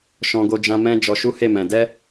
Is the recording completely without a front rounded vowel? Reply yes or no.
yes